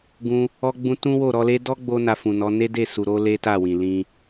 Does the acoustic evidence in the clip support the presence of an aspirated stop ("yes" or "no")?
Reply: no